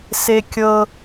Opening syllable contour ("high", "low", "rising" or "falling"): high